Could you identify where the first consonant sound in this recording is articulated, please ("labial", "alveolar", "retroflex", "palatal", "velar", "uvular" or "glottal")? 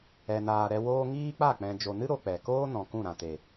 alveolar